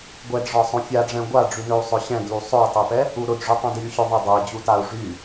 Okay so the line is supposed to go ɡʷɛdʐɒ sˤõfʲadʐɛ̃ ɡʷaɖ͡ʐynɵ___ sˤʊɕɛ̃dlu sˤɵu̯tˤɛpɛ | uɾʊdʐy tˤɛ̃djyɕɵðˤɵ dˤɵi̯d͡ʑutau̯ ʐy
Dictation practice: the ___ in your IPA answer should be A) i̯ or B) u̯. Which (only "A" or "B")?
B